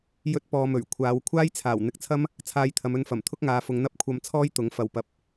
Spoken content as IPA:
j ɵ˥ t̚ p ɔː˧ m ɵ˨˩ ɥ kʷʰ aː˨˧ w kʷʰ aː˥ j t͡sʰ aː˨˩ w n̪ ɪ˧ k̚ t͡sʰ ɐ˥ m | t͡sʰ aː˧ j t̪ʰ ɐ˨˧ m ɵ˧ n f ɐ˨˩ m t̪ʰ ʊ˥ k̚ ŋ aː˨˧ f ʊ˨˧ ŋ n̪ ɐ˥ p̚ kʷʰ ɐ˧ m t͡sʰ ɔː˥ j t̪ ʊ˨˥ ŋ f ɐ˨ w p ɐ˨ p̚

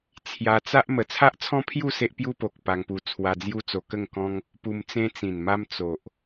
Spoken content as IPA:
t͡sʰ j a˧ t͡s a˦ ʔ m ə˨˩ t͡sʰ a˦ ʔ t͡sʰ ɔ̃˦ pʰ j u˥˧ s e˦ ʔ p j u˦ p o˨ k̚ p a˧ ŋ p u˧ t͡sʰ w a˧ d͡z j u˦ t͡s o˧ k ə˥˧ ŋ k ɔ̃˦ ŋ | p u˧ m t͡s ẽ˦ t͡s ĩ˨˩ n m a˦ m t͡s o˨ ʔ

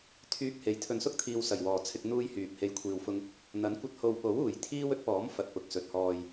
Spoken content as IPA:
t̪ʰ yː˧ k̚ h e˨˥ j t̪ʰ ɵ˨ n s ʊ˥ k̚ t̪ʰ iː˨ w s ɐ˨˩ j w ɔː˨˩ t͡sʰ ɪ˧ k̚ n̪ uː˧ j h yː˨ p̚ h e˧ j kʷʰ iː˨ w f ʊ˧ ŋ | n̪ ɐ˨˥ n kʷ ɐ˧ t̚ h o˨ w p o˨˥ w uː˨˩ j t̪ʰ iː˥ w ɵ˥ t̚ p ɔː˨˥ m f ɐ˨ t̚ p ʊ˨ k̚ s ɵ˨ t̚ h ɔː˨ j

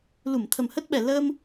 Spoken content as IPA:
l u˧˩ m t̪ʰ ə˨˩ m h ə˦˥ t̚ ɓ ɛ˨˩ l əː˧ m

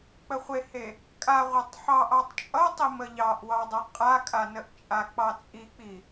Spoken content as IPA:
k͡p ə χʷ e h e | kʼ a ʁʷ a tˤ ħ ɑ ʔ ɑ tˤ t͡ʃʼ ʌ tˤ i m ə ʎ ɑ ʔ w ɑ dˤ ʌ qʼ a kʼ a n ə ʔ t͡ʃʼ a k͡p ɑ t͡sʼ i k͡p i

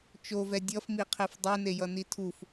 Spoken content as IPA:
t͡ʃ o v ɛ dʲ ʌ f m i qʰ e f dˤ ɛ n e j ʌ n i tʰ u f

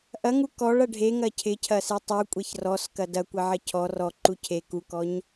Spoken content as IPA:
ʔ ɐ ŋ u k ɔ ɭ ɐ ɖʱ e ŋ ɐ cʰ ɪ cʰ ɐ s e tˤ u kʷʼ e ç r ɔ s k ɐ d ɐ kʷ ɐ ʕ ɐ cʰ ɔ r ɔ ǃ u cʰ e k u k ɔ ɲ

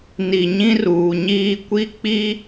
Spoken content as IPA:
n i˨ ɲ ĩ˦ r uː˨ ɲ iː˦ kʷ i˦ k͡p i˦

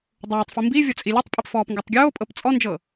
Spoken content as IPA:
dˤ oː tˤ f i m b i vʲ ɤ t͡sʼ i lʲ o tˤ pʼ i p f ɔː p ŋ ɡ o tˤ ɡʲ oː pʼ ɤ p t͡sʼ ɔ n d͡ʒ ɤ

